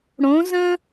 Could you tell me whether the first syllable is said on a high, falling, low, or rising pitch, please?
rising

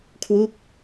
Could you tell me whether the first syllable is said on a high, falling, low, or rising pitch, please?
falling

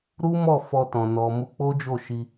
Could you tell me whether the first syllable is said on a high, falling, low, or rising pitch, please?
high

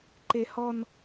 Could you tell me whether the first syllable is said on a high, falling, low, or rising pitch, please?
high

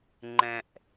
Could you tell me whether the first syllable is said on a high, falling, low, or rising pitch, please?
low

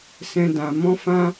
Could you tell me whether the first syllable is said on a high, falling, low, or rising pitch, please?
high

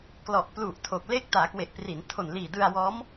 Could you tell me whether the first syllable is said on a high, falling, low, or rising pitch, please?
low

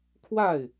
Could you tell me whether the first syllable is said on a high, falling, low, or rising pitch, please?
falling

